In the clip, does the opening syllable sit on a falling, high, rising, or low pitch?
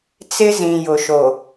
high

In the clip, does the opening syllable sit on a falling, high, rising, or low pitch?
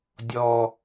low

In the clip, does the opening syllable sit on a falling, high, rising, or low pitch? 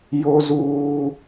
high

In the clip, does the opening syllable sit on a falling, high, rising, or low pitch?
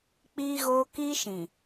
high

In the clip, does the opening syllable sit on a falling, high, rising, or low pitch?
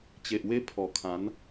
low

